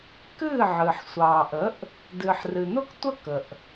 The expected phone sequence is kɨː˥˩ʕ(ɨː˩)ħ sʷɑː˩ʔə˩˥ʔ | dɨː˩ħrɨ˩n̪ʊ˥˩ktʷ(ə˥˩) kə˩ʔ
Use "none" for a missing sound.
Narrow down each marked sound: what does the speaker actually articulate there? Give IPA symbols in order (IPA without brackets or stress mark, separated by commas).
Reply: ɨː˩, ə˥˩